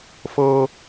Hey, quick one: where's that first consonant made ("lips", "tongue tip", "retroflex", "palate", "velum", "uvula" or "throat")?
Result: lips